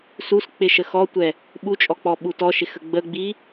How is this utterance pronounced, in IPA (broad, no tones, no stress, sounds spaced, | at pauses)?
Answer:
s u s k͡p ɪ ʃ ə x ɔ tʷ ɛ | ɓ u t͡ʃʼ ɔ k͡p ɔ ɓ u t ɔ ʃ ɪ x ə ɡ͡b ə ɡ͡b i